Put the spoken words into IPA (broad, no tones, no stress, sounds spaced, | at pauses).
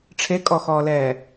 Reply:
ʈ͡ʂʰ e kʼ ɔ x ɔː l ɛː